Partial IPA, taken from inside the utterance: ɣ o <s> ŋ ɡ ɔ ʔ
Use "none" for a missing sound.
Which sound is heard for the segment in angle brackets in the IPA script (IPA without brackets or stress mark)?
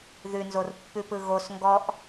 s